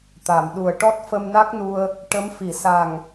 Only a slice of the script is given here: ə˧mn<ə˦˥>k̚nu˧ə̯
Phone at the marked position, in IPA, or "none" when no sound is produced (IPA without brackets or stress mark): a˦˥